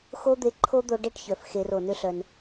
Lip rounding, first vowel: rounded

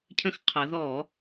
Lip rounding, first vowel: unrounded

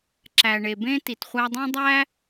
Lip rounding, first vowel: unrounded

